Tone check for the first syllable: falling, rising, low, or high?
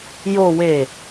low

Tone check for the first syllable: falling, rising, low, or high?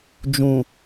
low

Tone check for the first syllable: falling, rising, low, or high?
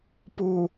low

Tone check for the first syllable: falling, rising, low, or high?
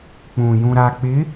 low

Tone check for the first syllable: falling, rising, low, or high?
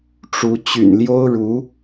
rising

